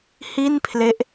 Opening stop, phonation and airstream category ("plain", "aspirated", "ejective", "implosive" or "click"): aspirated